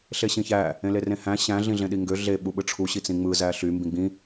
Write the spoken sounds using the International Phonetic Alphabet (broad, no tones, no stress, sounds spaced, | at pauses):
ɬ e ɕ ĩ ç æ | ẽ l e r ẽ h æ̃ ɕ æ̃ ɮ ĩ ɮ ẽ ɗ i ŋ ɡ ø ɮ e ɓ u ɓ ɯ ʈ͡ʂʰ u ɕ i t͡s ĩ ŋ͡m ɯ z æ ɬ y m b ĩ ɡ͡b ĩ